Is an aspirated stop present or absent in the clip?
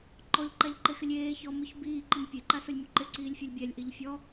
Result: absent